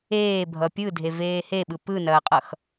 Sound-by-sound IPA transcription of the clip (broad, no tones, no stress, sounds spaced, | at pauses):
eː bʱ ʌ pʲ ɯ dʱ e v eː h e ɓ ɯ p ɯ n ɐː qʼ ʌ x